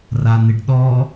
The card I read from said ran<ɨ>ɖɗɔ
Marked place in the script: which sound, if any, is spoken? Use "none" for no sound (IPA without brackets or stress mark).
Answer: ɪ